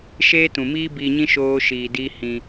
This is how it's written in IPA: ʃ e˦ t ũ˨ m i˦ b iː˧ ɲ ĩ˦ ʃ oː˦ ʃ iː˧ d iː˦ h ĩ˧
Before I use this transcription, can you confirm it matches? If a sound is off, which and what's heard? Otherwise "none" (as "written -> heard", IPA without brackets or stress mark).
i˦ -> iː˦